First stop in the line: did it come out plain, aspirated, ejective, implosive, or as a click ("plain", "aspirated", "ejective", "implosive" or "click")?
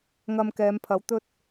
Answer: plain